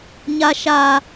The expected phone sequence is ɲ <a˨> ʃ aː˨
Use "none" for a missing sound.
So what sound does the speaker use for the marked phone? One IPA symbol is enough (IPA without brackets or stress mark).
a˨